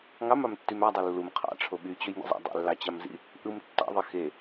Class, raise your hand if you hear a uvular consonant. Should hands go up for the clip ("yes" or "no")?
yes